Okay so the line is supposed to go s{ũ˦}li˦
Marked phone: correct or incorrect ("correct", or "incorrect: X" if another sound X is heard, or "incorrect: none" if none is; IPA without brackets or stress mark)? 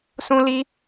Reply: correct